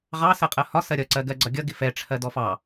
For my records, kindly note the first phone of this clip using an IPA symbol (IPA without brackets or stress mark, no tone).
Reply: ʁ